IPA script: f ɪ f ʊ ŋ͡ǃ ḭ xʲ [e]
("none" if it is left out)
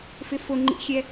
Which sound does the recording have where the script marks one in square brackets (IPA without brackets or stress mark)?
ɛ